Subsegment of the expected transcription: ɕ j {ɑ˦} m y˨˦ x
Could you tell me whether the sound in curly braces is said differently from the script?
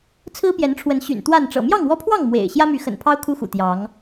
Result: yes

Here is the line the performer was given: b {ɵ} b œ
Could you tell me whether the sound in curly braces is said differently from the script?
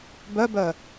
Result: yes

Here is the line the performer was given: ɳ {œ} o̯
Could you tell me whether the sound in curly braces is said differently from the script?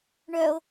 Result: no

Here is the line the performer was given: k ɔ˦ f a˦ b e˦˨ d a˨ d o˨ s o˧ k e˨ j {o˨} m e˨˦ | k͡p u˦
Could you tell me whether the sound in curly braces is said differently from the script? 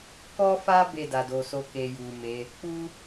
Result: yes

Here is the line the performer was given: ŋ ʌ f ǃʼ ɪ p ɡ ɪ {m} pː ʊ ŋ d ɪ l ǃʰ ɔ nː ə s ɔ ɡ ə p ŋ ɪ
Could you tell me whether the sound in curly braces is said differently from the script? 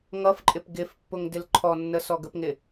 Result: yes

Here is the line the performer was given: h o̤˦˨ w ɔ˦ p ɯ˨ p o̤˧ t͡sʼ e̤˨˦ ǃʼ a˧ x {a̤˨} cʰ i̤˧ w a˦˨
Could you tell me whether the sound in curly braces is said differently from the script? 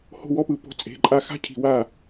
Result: yes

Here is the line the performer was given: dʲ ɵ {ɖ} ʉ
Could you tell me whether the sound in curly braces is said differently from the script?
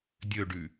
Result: no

